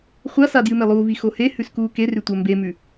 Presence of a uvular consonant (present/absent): present